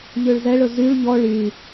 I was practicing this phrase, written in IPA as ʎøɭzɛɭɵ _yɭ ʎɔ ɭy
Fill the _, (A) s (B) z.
B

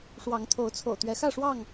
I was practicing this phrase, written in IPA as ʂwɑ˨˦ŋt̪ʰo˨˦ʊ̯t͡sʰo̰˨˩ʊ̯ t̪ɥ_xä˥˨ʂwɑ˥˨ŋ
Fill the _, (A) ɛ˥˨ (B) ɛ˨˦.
B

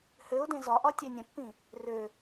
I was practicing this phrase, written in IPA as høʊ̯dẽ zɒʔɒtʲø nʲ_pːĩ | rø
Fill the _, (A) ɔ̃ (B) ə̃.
B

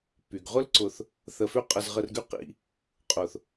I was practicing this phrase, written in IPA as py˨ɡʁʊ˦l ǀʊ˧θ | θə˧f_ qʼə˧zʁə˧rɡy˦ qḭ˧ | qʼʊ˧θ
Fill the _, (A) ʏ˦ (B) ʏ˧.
A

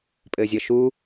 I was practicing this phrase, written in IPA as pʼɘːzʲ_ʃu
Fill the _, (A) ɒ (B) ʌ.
B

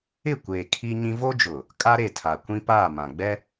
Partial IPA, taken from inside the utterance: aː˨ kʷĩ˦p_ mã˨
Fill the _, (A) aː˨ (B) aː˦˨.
B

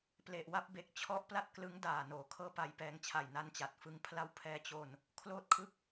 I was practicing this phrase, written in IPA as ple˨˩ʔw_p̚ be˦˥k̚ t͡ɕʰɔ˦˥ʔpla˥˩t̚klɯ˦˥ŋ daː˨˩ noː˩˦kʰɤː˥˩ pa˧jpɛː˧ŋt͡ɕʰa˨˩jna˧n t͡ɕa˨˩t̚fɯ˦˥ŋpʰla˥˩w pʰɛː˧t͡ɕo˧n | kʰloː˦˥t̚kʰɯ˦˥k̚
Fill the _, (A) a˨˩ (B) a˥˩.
B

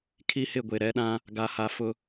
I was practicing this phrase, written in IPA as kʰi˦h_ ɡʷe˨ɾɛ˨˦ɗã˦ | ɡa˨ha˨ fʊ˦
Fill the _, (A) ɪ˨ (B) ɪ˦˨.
B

